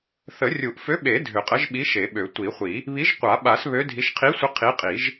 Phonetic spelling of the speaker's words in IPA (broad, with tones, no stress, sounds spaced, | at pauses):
θ ə˨˩˦ rʲ u˨˩˦ ʔ f ø˨˥ ɓ e˨˩˦ dʱ ø˨˩˦ qʼ ə˨˥ ʒ ɓ i˨˥ ʃ e˨˩˦ ɓ ø˨˩˦ tʷ i˨˩˦ χʷ i˨˩˦ | β i˨˥ ʒ qʷ a˨˩˦ ɓ a˨˩˦ s β ø˨˥ dʱ i˨˥ ʃ qʰ i˨˥ sʷ ə˨˥ qʰ i˨˥ qʼ i˨˩˦ ʒ